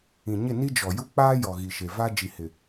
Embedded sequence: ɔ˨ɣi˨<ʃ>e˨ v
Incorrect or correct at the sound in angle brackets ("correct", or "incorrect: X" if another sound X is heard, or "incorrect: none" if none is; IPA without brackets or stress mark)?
correct